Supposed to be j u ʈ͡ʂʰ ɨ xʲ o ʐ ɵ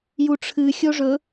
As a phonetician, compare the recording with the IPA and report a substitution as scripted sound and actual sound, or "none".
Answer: none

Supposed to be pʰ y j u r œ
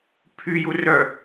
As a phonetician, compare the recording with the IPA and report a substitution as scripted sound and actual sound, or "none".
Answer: none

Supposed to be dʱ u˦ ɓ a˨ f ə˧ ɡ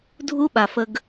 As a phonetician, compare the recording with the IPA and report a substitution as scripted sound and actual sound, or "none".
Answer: none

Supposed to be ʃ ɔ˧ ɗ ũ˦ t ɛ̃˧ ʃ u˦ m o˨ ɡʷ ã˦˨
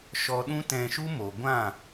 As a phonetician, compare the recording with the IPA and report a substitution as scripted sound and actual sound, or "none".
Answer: none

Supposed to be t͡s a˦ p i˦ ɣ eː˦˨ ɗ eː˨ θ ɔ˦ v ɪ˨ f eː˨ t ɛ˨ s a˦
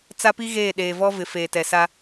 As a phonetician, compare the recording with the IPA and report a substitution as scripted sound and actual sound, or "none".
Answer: θ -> v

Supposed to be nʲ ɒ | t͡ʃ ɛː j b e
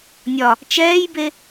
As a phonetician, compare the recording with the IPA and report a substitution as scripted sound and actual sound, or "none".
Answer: none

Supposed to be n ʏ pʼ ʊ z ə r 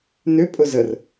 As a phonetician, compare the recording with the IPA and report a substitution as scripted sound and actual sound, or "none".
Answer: none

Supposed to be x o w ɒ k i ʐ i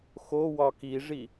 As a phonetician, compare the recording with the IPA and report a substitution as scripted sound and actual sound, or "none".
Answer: none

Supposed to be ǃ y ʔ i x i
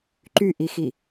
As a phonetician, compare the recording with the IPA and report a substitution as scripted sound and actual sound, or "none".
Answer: none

